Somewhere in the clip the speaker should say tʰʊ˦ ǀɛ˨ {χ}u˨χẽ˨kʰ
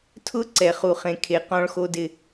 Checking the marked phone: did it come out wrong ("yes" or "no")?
no